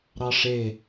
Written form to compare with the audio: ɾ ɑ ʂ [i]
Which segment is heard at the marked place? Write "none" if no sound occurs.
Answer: e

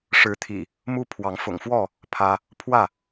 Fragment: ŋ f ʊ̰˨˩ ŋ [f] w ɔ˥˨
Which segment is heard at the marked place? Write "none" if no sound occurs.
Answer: f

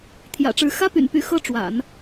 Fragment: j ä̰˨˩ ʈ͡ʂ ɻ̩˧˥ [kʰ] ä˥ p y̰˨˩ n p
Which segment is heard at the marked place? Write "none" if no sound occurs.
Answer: x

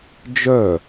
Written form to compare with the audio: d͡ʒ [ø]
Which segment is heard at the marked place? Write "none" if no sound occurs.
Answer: œ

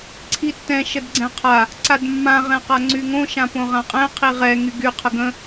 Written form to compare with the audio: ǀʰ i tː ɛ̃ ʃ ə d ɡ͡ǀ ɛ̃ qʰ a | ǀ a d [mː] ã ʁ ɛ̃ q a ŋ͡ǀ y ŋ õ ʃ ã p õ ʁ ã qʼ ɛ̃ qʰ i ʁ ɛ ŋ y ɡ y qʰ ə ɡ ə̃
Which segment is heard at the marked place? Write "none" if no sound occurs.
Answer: mː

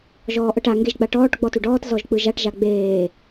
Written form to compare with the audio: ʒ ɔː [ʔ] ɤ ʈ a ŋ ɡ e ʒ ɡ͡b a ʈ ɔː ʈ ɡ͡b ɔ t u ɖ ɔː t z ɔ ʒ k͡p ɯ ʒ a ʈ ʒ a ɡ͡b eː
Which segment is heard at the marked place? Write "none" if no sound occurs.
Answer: ʔ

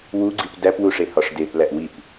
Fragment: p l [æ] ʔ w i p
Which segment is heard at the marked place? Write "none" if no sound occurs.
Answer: æ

